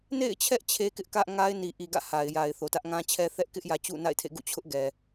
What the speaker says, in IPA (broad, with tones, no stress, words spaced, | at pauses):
nḛ˦˨ɪ̯t͡ɕʰɛ˦ʔ t͡ɕʰe˦kɪ˦ʔkä˦ʔ ŋa˦ɪ̯ni˨ʔi˨ ɡä̰˦˨ha˨ɪ̯ja˨ɪ̯ θo˨tä˦ʔŋã˦t͡ɕʰɛ˦ θɛ˦ʔkɪ˦ʔjä˨ t͡ɕṵ˦˨na̰˦˨ɪ̯tʰḛ˦˨ ɡṵ˦˨t͡ɕʰʊ˦ʔɡɛ˨